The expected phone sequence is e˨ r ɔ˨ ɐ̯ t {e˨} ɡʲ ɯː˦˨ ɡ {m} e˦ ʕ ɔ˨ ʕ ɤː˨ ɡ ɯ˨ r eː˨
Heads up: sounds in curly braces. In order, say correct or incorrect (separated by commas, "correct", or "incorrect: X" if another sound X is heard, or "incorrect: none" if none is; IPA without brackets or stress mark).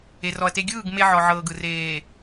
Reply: incorrect: e˦, correct